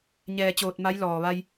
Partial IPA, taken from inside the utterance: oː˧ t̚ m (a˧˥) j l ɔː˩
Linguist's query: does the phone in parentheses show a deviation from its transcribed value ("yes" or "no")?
no